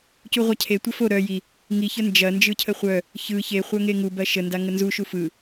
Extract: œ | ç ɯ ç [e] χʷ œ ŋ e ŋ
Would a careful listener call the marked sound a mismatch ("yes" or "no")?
no